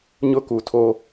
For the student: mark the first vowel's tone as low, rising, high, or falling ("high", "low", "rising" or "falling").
high